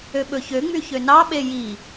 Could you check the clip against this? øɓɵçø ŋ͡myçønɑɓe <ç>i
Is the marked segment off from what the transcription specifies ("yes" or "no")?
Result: yes